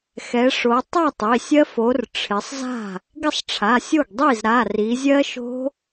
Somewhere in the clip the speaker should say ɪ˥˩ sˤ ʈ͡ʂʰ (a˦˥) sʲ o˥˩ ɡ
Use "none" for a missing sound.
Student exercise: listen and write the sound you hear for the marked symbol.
a˩˧˩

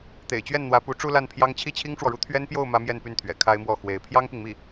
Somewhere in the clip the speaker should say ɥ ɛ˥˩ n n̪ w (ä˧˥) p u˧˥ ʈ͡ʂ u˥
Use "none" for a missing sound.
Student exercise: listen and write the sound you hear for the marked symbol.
ä˧˥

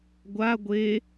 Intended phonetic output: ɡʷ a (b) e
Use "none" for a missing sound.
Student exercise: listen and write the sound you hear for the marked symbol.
ɡʷ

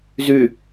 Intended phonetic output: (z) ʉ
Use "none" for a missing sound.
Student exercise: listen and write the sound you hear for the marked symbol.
z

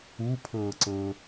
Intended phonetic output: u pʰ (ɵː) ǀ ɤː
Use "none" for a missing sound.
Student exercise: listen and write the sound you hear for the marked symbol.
ɤː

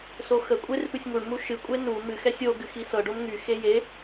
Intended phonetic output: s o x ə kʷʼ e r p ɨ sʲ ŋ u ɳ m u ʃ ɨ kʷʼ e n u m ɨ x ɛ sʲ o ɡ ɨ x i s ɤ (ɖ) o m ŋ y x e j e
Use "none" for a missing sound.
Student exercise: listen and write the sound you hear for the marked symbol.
ɖ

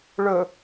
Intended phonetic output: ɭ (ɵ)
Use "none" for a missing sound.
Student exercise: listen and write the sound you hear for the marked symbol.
ɵ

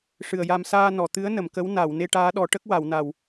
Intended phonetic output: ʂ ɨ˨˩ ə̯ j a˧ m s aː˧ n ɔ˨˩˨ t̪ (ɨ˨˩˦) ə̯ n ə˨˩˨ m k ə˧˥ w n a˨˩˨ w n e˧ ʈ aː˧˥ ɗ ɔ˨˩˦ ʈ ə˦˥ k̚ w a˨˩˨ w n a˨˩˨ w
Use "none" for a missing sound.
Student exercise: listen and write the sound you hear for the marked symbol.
ɨ˧˥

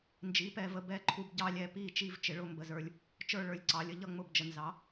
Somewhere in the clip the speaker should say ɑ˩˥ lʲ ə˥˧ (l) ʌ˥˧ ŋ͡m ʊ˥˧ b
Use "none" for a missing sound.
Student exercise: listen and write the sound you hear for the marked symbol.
ʎ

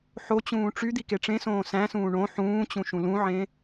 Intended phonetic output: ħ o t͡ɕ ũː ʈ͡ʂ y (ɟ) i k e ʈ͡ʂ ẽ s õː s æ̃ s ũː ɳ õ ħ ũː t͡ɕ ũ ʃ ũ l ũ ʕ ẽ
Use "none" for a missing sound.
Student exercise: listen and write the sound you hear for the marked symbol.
d̪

